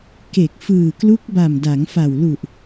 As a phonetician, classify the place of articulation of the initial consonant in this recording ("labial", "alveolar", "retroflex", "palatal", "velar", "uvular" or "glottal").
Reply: velar